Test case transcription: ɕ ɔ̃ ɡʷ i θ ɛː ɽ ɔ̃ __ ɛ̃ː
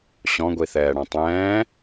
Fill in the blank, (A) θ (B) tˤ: B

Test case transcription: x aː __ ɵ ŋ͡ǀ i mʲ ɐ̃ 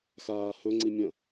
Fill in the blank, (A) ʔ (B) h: B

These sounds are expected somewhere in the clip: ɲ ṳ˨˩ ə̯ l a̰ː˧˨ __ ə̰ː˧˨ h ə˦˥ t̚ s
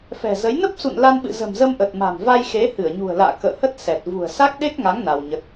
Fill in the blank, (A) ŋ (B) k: B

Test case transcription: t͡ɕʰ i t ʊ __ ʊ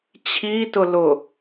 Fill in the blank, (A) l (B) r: A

